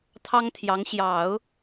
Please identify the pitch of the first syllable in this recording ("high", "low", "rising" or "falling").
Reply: high